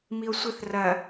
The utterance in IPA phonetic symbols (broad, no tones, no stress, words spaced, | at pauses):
mio̯sʷɘθ rɐ